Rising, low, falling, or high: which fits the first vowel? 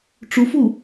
rising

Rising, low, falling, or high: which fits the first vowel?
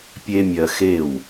high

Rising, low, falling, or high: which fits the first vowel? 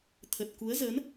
low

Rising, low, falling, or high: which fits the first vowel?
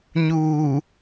low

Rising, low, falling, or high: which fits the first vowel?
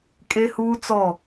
high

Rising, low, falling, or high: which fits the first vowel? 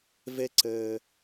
high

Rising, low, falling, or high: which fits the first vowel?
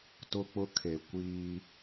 high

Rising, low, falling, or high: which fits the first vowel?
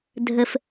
low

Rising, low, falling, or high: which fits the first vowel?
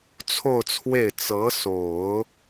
falling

